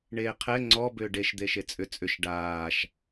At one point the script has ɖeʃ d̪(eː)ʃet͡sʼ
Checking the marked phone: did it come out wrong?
yes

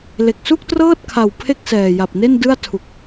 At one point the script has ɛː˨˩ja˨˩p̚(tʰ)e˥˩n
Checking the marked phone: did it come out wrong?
yes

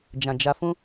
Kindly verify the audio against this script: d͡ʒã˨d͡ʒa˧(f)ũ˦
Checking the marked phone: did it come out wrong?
no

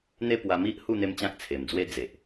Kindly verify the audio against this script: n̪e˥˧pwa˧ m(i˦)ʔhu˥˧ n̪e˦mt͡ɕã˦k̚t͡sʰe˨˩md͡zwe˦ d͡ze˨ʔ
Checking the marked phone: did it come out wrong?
no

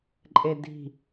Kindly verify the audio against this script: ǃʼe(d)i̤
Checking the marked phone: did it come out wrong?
no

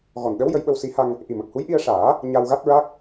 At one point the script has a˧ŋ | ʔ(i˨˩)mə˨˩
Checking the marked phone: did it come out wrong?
no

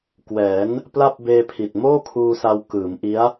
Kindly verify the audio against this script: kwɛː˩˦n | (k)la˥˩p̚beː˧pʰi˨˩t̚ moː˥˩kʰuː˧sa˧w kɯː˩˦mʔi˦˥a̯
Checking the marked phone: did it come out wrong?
yes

